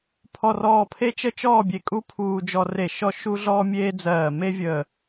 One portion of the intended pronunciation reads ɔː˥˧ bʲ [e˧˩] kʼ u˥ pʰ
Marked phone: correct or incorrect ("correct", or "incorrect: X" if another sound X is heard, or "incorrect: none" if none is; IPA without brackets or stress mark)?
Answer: correct